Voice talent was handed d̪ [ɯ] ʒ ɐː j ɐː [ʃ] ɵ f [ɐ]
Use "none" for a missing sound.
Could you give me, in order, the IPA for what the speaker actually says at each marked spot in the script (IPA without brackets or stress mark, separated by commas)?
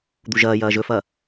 u, ʒ, ɐ